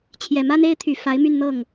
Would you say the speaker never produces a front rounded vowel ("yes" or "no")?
no